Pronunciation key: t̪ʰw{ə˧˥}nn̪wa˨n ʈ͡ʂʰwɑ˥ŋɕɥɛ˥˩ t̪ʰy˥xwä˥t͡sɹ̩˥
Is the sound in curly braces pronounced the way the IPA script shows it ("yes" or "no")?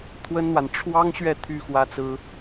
no